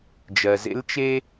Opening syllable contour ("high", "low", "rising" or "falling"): low